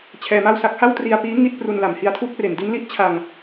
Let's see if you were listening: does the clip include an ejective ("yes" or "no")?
no